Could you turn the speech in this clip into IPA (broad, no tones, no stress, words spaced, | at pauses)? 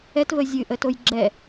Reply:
ɛtvə zʲɨʔətoj ɡ͡ǁɛ